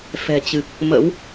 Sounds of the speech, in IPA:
f ɛ̤˨˩ t͡ɕ ɨ˨˩ k̚ | m ə̰˧˥ w

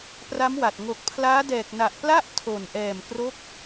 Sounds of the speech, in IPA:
p r a˦˥ m w a˨˩ t̚ ŋ o˨˩ k̚ pʰ l aː˦˥ d ɛː˨˩ k̚ n a˨˩ ʔ p l a˥˩ ʔ tʰ o˨˩ n ʔ ɛː˨˩ m k r o˦˥ k̚

